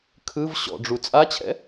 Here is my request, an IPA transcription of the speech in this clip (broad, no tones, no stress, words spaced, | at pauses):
kʰɯv ɕɔ̰ɖ͡ʐu t͡sʼat͡ɕʰɛ̰